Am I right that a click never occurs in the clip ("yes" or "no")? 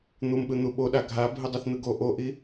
yes